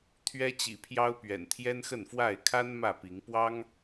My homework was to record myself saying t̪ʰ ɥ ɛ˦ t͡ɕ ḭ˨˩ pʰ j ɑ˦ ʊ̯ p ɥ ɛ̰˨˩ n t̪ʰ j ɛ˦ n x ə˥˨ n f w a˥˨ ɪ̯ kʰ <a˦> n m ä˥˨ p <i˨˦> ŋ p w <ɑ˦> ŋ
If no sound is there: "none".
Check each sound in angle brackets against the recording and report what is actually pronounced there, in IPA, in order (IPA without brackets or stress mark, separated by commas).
a˦, i˨˦, ɑ˦